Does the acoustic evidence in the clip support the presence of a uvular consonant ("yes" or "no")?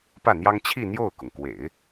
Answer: no